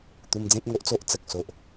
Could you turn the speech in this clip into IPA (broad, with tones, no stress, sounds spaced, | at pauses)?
t̪ u˧ m d͡z ẽ˦ p̚ ŋ o˦ ʔ t͡s o˦ ʔ t͡s ə˨ k̚ s o˨ ʔ